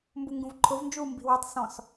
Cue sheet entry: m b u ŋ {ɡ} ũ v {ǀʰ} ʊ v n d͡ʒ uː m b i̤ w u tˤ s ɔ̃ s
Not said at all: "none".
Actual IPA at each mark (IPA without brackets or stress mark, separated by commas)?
ɡ, ǃʰ